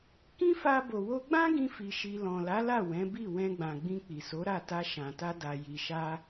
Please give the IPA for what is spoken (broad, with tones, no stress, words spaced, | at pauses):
kĩ˦fa˧ bo˨wo˧ɡ͡bã˦ɡĩ˧ fi˧ʃi˧ lɔ̃˨la˨˦la˦˨ wɛ̃˨˦bi˦˨ wɛ̃˧ɡ͡bã˨ɡ͡bĩ˧ k͡pi˨so˨˦ɾa˦˨ ta˧ ʃã˨ta˧ da˧ji˧ ʃa˧